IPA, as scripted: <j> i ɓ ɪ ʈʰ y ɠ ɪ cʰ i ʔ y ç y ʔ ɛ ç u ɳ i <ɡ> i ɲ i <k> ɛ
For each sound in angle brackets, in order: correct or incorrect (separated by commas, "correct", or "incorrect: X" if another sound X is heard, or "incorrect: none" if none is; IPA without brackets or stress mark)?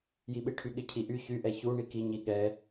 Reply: correct, incorrect: k, incorrect: ɠ